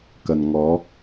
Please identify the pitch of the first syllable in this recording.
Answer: low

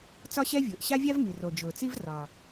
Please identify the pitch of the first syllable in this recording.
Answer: high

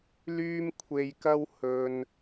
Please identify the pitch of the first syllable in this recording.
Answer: high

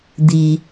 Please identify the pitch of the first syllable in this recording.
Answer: low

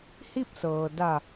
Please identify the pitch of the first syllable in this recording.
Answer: falling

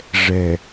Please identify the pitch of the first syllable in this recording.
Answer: low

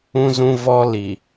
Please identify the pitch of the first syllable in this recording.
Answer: high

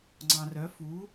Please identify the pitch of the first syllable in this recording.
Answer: low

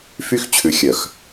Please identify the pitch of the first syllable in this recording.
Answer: high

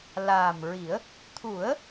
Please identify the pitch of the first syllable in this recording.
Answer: low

